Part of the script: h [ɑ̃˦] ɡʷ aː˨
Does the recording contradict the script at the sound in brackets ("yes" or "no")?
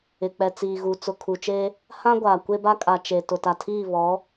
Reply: yes